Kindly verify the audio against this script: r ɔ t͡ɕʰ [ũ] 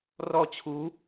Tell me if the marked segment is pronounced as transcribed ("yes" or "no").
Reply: no